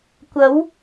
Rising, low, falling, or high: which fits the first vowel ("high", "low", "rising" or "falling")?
rising